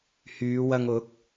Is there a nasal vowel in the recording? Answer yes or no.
no